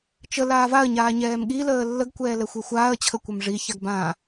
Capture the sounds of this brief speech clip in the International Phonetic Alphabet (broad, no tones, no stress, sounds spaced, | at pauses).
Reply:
t͡ʃ ə l aː v a ə̯ ɲ aː ɲ ɛː m ɠ i l əː lː ə ɡ kʷ ɛː l ɛ xʷ e xʷ aː ə̯ t͡ɕʰ ə kʷ ɛ m ʐ i ç a ɡ b ã